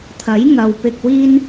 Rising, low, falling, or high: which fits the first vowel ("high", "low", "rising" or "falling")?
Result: rising